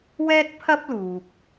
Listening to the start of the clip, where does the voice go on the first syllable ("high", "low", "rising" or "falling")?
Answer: high